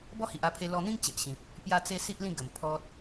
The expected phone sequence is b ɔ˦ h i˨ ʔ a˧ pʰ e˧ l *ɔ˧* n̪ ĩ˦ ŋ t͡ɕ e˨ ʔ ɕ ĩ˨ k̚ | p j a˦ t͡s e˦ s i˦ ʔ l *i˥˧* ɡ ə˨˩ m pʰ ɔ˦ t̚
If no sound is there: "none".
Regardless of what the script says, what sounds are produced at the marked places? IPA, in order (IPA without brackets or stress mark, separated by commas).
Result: ɔ˧, ĩ˥˧